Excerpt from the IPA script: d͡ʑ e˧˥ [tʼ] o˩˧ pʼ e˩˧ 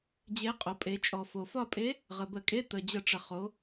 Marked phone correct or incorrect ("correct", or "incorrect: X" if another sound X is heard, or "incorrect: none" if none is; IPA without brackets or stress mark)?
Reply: incorrect: qʼ